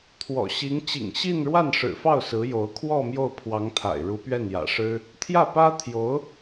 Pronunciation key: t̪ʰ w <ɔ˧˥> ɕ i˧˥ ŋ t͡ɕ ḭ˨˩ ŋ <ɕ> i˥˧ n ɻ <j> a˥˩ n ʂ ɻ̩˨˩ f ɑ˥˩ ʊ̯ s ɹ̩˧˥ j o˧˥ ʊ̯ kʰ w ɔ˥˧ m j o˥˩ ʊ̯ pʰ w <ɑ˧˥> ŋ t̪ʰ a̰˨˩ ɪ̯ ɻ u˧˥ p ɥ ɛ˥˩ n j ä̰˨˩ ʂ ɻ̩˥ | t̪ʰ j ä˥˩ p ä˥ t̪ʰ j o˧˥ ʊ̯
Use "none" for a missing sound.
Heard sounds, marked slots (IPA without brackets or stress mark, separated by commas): ɔ̰˨˩, ɕ, w, ɑ˧˥